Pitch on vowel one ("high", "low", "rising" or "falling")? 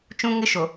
high